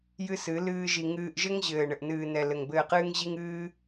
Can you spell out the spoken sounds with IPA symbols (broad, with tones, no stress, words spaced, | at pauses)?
jɨ˦sɨ˨˦lɨː˦ʒi˧ ŋɨː˧ʔʒɘ˦ŋ ʑɘː˨ɳɘ˨ʔnɨː˨ nɛ˨ lɘ˨ŋbɘː˧qɨː˦ŋ ʑi˦ŋɨː˦